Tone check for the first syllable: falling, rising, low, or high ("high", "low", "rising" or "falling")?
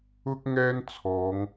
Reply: high